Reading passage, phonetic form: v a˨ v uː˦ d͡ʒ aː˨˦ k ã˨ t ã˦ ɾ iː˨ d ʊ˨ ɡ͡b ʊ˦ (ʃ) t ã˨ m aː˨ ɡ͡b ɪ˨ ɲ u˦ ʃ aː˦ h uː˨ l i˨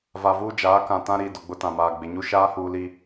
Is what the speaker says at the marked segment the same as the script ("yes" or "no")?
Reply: no